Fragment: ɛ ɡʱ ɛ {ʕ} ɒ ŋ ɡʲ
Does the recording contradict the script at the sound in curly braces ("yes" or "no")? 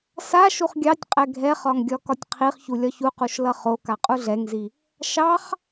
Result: yes